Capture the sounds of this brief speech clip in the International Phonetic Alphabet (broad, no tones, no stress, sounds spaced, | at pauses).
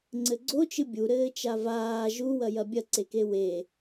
ŋ͡ǀ ɘ ɡ͡ǀ o t͡ʃ ɨ bʲ u ɾ ɘː t͡ʃ a v aː ʒ u w ɐ j ɐ bʲ ɐ ǀ e k e w e